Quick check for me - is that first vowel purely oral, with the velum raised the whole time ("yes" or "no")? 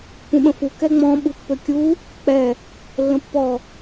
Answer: no